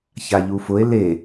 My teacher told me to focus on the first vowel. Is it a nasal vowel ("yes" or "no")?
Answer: no